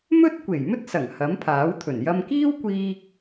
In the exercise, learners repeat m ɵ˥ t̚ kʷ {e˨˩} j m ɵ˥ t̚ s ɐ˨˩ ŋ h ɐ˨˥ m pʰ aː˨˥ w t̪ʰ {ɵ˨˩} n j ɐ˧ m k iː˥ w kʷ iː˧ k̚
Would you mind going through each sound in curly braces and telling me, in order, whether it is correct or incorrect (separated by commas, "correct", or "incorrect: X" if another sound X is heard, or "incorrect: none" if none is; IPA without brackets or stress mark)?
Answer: correct, correct